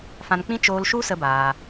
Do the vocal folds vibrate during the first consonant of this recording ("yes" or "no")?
no